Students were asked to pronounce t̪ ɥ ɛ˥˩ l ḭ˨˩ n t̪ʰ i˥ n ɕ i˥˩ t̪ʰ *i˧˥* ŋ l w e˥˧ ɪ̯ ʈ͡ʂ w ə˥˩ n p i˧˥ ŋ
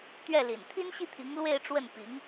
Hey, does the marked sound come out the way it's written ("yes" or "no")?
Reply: yes